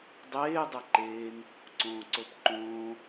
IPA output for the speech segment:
dˤeː dˤɛǃeːŋ | ǀõːǀopǃõː

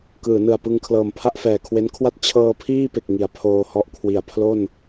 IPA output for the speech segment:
kɯː˩˦nɯ˨˩a̯pɯ˧ŋ kʰlɤː˨˩mpʰa˥˩ʔfɛː˨˩kʰwe˦˥n kʰwa˥˩t̚ t͡ɕʰɤː˧pʰiː˥˩pe˨˩k̚ ŋi˩˦a̯pʰoː˧hɔ˥˩ʔ kʰwi˩˦a̯ pʰlo˥˩n

